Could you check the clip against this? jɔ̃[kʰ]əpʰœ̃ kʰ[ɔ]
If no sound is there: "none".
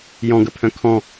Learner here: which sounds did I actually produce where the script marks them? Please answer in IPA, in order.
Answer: ɡ, ɔ̃

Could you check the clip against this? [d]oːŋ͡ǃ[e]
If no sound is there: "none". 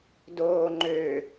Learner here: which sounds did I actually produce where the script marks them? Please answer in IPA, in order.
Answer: d, ø

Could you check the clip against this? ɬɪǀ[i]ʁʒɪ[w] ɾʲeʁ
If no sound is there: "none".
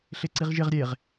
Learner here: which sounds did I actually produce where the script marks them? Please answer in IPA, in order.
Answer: i, ʁ

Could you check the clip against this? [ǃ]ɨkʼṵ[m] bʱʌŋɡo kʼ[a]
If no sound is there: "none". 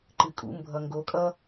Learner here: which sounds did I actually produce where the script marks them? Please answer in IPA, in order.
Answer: ǃ, m, ʌ

